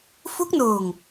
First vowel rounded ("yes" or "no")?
yes